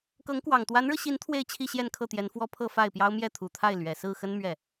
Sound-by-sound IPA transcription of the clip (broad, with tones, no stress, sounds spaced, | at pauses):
k ɤ˧˥ ŋ k w ɑ˨˩ ŋ t̪ w a˧˥ n ɻ ɤ˧ ɕ i˧˥ n t̪ʰ w e˥˧ ɪ̯ t͡ɕʰ i˥˧ ɕ j ɛ˥˧ n kʰ ɤ˥˩ t̪ j ɛ˧˥ n f w ɔ˥ pʰ ɤ˥˧ f a˥˩ ɪ̯ p j ɑ˥ ʊ̯ m j ɛ˥˩ t̪ʰ u˨˩ t̪ʰ a˥˩ ɪ̯ l ɥ ɛ˨˩ s ɹ̩˥˩ x ə˥ n m ɥ ɛ˥˩